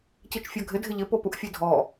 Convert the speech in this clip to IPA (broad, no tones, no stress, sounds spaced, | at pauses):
c i t͡ʃ fʲ ɔ ɡʱ ɪ dʱ ɪ ʎ ɪ p o p u ʔ fʲ e dʱ ɔ